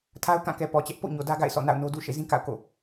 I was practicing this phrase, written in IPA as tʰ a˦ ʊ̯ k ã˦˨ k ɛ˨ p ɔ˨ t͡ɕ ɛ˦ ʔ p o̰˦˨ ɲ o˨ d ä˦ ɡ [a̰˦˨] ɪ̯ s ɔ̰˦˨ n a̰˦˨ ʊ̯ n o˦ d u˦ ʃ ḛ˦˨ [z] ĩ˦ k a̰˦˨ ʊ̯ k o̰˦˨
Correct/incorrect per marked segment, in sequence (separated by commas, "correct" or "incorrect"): correct, correct